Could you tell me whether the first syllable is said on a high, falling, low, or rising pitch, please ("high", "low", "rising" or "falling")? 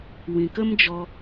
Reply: low